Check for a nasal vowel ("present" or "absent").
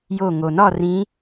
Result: present